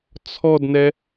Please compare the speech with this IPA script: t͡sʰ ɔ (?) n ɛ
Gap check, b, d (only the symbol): d